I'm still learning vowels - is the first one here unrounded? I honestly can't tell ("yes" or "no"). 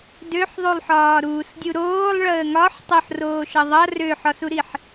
no